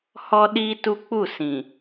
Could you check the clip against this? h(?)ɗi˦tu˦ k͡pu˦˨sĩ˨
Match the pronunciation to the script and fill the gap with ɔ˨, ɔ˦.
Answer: ɔ˦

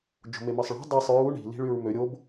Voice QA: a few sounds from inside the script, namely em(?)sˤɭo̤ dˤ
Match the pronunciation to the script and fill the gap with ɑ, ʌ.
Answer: ɑ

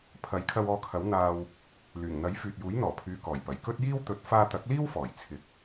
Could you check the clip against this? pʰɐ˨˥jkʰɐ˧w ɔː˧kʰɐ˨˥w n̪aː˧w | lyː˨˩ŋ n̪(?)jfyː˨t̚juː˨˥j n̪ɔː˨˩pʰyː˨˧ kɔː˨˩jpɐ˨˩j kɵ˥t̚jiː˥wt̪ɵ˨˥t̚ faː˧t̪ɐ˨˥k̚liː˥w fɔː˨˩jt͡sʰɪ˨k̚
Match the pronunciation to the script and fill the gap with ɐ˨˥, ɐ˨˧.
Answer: ɐ˨˥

